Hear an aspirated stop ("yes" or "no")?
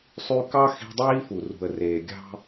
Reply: no